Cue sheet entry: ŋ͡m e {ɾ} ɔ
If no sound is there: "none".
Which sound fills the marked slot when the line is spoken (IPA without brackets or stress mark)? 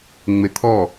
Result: t̪ʰ